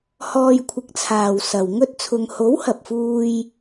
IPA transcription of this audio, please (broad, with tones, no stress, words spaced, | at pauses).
hɔː˧jkʷʰɪ˨˥k̚t͡sʰaː˨wsɐ˨w ŋɵ˥t̚t͡sʰʊ˧ŋ ho˨˥whɐ˨p̚fuː˧j